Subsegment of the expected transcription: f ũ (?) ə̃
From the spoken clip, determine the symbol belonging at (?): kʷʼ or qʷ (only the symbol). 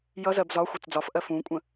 kʷʼ